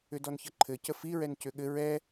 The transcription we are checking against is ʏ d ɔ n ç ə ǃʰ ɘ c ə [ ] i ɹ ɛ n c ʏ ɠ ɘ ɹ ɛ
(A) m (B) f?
B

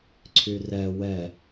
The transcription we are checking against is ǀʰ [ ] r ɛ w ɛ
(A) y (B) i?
A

